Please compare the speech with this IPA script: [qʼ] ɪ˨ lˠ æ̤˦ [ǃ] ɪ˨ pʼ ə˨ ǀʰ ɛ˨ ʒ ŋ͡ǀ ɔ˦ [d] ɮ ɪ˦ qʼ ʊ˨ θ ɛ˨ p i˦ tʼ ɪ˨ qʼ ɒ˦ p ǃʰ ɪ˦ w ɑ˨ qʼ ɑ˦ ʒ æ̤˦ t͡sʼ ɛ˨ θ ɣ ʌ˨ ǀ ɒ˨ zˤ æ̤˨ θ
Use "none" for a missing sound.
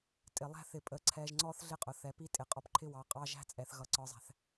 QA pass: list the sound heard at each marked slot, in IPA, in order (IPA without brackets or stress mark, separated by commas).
tʼ, θ, θ